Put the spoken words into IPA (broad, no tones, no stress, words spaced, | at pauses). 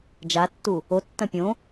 d͡ʒatːu | otːɐ̃ pʲõ